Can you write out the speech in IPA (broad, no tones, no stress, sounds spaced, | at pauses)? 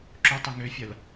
ǁ ʊ tˤ ə ŋ ø fʲ ɐ l